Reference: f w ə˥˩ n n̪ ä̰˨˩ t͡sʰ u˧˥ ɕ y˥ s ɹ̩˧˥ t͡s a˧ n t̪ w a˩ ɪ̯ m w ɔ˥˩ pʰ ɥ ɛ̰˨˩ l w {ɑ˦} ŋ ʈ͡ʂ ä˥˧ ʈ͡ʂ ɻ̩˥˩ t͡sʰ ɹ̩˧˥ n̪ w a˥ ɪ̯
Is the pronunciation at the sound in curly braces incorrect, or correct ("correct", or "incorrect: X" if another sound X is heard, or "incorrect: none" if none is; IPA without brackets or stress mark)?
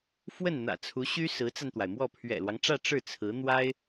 correct